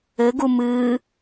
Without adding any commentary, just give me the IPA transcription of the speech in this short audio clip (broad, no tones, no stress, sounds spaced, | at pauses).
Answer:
ɘ ɡ u m ɨː